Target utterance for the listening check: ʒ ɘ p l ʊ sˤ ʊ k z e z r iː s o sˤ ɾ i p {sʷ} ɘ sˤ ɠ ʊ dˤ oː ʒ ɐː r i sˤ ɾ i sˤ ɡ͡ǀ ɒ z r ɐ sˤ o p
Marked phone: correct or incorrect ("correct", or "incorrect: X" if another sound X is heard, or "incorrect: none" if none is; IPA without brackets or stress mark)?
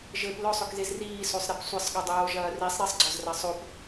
correct